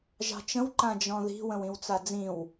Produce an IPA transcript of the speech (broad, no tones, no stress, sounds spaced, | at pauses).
ʒ ɑ̤ t͡ʃ ə̃ w ǃ ã d͡ʒ ɔ̃ ð i̤ w ə̃ w ĩ w t͡s a d͡z ĩ w